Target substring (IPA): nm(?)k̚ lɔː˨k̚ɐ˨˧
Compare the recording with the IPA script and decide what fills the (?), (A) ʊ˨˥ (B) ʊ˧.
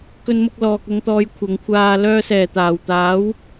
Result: B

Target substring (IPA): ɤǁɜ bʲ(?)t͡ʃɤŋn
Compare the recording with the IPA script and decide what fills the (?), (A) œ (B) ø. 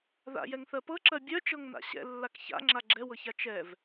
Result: A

